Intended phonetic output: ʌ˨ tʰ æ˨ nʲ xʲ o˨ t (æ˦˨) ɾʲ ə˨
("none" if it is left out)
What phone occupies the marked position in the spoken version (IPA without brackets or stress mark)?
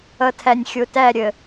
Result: æ˦˨